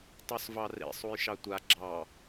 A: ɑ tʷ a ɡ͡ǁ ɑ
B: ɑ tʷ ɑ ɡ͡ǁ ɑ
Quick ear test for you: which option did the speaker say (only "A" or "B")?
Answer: A